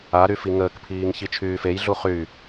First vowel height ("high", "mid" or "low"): low